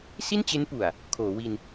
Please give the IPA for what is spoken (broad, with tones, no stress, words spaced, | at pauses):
si˥˩nt͡ɕe˦˥npu˨˩a̯ | kʰoː˩˦wi˧n